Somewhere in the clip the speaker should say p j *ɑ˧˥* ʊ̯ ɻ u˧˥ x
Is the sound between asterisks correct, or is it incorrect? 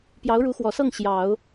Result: correct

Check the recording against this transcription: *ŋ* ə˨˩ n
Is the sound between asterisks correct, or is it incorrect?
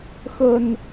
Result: incorrect: x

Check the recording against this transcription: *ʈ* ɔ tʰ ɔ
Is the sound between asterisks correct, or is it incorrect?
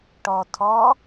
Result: correct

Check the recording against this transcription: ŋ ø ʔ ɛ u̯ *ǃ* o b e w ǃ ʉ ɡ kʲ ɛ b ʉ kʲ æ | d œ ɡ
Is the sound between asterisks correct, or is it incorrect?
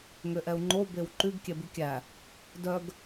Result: incorrect: ŋ͡ǃ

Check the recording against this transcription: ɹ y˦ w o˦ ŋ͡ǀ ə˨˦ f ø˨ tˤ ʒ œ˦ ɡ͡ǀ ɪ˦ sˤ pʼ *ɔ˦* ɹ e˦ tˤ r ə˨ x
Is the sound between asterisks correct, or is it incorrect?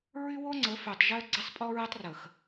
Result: correct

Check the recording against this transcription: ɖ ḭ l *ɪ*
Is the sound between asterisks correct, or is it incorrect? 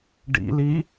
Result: incorrect: i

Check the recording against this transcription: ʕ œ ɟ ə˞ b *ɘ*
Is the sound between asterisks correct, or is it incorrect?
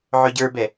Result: incorrect: ɛ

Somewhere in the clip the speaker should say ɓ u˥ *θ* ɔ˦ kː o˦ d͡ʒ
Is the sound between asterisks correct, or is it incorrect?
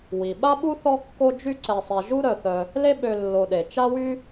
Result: correct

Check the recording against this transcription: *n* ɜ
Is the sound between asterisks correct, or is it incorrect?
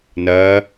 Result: correct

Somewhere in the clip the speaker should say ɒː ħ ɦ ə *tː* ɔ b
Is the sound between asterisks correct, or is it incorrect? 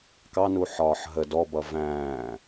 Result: incorrect: d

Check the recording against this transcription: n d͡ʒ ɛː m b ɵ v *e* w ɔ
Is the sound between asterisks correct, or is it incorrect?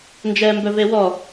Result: correct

